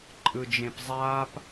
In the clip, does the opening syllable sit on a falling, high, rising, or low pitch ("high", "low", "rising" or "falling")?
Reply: low